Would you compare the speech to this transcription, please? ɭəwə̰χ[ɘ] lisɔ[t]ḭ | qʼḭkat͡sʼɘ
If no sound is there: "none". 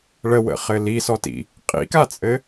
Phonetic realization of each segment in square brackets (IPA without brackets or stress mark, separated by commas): ɘ, t